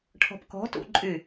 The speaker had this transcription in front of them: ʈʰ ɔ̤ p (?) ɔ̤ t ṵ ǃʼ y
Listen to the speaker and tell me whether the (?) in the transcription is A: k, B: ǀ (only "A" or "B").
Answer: A